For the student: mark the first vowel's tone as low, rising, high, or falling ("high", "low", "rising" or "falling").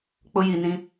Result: high